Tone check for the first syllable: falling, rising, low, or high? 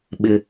high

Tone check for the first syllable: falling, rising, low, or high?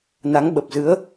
rising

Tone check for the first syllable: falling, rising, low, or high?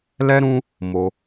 high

